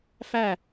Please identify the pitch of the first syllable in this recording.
falling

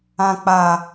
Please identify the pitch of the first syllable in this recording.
low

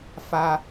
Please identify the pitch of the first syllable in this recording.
low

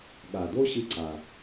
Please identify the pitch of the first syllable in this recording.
low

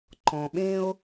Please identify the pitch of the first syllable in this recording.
low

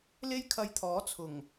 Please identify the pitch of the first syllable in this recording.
high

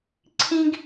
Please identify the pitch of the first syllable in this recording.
high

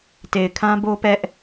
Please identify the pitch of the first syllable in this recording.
low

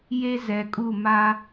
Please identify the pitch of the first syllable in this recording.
high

